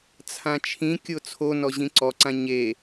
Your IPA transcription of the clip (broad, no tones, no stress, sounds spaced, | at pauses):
t͡sʰ ã t͡ʃʰ ĩ kʲ o t͡sʰ o n ɔ ʑ ĩ ǀ ɔ ǀ ã ɲ e